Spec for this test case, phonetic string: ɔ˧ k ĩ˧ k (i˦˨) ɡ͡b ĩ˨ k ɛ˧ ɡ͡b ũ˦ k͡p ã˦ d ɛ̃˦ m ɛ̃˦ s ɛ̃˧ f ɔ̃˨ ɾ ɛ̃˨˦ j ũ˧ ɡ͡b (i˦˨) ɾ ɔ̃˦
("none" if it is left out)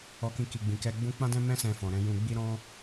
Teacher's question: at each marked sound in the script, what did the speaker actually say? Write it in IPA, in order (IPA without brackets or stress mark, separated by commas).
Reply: i˨, i˦